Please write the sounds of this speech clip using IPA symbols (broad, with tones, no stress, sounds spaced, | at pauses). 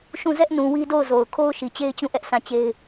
ʃ ũ˦˨ z ɛ˦ ʔ n ũ˨ w i˦ d o˦˨ ʊ̯ z o˨ ʊ̯ kʰ o˦ ʊ̯ ʃ i˨ t͡ɕ e˦ ɪ̯ t͡ɕ ũ˦˨ ʔ ɛ˦ ʔ s ã˦˨ t͡ɕ e˦ ɪ̯